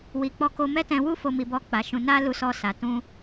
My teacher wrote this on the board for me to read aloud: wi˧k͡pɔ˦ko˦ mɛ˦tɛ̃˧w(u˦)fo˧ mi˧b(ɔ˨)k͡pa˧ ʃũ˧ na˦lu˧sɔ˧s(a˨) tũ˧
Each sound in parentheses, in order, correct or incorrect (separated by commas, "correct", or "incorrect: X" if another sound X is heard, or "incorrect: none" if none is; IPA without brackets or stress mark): correct, incorrect: ɔ˦, correct